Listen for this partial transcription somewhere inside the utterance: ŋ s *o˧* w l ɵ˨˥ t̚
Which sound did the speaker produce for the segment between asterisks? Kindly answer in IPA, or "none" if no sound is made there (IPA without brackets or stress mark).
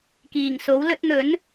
o˨˥